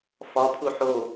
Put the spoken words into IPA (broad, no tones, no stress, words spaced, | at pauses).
fɒpʰu ħo